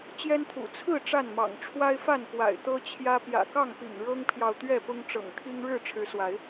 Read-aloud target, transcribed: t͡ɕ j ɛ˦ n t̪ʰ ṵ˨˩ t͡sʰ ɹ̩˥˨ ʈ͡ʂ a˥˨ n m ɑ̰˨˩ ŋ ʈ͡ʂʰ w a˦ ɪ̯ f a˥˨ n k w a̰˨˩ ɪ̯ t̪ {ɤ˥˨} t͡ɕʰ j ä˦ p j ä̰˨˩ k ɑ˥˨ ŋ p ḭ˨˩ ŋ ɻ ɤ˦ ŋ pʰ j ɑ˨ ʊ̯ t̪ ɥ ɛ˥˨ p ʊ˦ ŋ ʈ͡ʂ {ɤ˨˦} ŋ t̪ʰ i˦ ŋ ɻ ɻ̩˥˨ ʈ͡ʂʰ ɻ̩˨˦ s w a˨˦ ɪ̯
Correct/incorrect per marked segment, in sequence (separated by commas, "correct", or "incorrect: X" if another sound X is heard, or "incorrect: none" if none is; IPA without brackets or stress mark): incorrect: ɤ˦, incorrect: ɤ̰˨˩